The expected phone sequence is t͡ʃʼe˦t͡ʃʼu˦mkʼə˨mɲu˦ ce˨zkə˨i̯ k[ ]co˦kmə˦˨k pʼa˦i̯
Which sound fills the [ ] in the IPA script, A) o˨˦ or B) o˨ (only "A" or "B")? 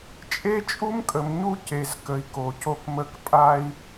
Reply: B